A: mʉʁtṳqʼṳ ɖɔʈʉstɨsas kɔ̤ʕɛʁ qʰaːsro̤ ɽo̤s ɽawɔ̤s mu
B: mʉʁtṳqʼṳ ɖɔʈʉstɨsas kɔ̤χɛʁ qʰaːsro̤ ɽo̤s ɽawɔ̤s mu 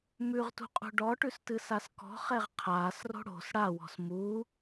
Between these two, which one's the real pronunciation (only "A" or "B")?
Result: B